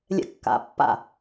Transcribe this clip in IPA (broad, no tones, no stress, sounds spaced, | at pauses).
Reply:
lʲ ɛ̰ kː a̰ pː a̰